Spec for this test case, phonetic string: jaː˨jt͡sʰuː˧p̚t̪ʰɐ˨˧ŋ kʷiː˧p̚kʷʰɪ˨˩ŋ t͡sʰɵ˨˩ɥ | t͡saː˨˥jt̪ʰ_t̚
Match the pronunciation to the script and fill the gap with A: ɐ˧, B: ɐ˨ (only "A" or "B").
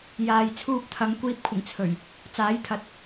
B